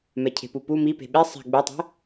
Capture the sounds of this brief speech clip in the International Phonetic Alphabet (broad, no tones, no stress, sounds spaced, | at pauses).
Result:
m ɛ cʰ e̤ p u p u m i p e̤ ɓ e sˤ ɛ̤ ɡ͡b u tˤ ɛ̤